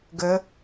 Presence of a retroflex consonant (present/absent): absent